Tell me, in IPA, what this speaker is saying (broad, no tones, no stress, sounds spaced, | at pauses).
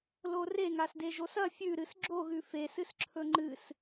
l o r e ŋ a s d e ʒ o s ɐ fʲ ʉ ɾ ɨ s ɡ͡ǁ o ɣ ʉ f e s ɨ s ǁʰ ɵ ŋ͡ǃ ɨ s